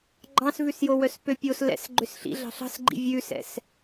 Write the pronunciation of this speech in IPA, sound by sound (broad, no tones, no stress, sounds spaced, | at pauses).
ɡ͡ǃ ɑ̃ s v ʉ s j o w œ s p ø pʲ o s l ɛ̰ s ɡ͡ǃ ø s ɬ ḭ ɮ ɑ̤ ɬ ɑ̤ s ɡ͡ǃ ḭ vʲ ʉ s ɛ̰ s